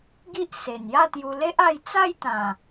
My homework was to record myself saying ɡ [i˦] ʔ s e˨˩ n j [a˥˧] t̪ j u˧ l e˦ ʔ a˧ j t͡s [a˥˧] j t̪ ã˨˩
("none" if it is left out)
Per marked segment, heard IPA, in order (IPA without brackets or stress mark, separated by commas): i˦, a˥˧, a˥˧